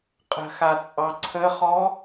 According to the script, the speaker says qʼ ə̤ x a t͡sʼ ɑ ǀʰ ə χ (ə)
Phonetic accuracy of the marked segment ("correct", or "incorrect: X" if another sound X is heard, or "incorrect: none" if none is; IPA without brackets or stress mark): incorrect: ɔ